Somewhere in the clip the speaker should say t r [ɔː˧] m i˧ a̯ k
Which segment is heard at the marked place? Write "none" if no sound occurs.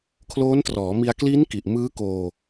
ɔː˩˦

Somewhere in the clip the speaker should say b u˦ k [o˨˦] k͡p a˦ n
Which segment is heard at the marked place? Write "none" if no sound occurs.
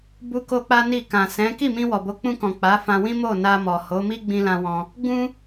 o˦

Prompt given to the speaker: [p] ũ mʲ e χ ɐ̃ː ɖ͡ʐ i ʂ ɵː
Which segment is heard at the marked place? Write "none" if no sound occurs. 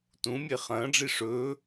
t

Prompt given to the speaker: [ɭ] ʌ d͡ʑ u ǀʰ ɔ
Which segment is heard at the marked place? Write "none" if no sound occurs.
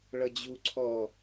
ɭ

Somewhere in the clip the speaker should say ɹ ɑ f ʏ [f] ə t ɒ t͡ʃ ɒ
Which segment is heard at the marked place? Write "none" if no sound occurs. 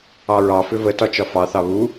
v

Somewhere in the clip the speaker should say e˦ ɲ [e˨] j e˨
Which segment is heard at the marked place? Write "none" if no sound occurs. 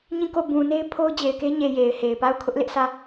e˨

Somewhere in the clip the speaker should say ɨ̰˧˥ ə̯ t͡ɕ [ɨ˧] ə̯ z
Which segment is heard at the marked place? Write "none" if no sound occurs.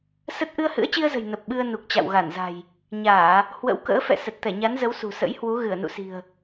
i˧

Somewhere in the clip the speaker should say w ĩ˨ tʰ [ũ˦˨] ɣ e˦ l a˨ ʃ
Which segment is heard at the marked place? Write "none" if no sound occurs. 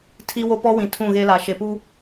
ũ˦˨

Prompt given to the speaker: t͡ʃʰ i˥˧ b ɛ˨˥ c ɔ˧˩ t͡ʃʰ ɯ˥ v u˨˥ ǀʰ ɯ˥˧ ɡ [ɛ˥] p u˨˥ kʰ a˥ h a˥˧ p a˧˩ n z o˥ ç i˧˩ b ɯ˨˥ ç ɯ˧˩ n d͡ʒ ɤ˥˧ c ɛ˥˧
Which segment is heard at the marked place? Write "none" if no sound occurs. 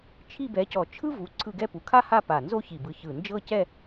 ɛ˥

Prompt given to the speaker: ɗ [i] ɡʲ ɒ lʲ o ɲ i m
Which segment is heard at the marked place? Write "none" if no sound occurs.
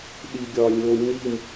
i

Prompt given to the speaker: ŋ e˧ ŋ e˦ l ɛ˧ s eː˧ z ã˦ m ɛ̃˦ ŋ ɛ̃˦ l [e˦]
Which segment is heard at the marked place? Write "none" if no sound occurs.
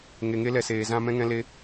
e˦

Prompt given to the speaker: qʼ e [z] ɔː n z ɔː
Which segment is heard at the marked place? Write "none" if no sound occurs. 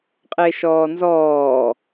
ʃ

